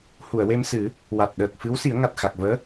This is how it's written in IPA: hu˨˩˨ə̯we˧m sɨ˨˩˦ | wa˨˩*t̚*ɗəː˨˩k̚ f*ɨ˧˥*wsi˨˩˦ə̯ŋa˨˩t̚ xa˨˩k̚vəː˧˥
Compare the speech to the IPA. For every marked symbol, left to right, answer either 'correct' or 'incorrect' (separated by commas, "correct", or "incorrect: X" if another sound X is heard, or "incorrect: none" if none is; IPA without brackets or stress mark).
correct, correct